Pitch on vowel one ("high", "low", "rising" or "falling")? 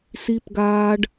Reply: low